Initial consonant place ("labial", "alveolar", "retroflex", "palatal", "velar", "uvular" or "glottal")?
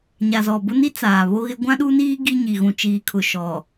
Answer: palatal